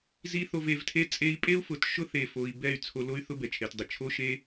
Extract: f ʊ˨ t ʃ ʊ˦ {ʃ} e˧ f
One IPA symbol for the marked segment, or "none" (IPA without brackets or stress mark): θ